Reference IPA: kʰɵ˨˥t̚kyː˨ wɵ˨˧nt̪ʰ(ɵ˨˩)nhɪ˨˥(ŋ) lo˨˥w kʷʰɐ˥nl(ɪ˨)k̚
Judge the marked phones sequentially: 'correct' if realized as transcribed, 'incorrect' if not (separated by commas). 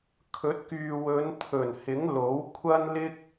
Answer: correct, correct, incorrect